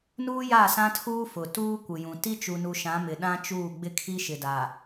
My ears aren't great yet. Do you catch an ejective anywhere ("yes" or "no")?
no